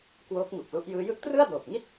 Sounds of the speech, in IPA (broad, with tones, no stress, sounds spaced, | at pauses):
k w oː˦˥ k̚ ŋ u˨˩ k̚ l u˦˥ ʔ j ɯː˦˥ j ɯ˦˥ k̚ t r ɯ˥˩ a̯ d oː˨˩ k̚ ŋ i˥˩ t̚